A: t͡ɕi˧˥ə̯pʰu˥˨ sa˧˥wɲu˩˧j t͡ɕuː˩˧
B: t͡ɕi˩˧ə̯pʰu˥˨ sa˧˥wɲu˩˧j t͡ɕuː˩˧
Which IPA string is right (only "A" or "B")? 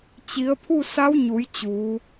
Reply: B